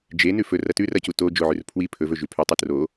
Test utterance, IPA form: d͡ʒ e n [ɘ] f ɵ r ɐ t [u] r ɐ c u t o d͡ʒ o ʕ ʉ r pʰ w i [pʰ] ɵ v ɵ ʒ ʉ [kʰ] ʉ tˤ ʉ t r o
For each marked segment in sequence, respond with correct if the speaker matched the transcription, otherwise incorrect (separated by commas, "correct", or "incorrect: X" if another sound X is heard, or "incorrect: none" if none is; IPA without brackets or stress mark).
incorrect: ʉ, incorrect: ʉ, correct, incorrect: pʰ